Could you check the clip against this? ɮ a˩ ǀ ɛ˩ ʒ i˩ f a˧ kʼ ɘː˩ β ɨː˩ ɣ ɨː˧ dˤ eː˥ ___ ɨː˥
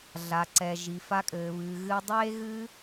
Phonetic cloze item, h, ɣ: ɣ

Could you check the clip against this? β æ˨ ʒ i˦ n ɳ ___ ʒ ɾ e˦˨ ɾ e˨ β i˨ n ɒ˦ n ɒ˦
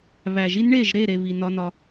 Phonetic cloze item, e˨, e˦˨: e˦˨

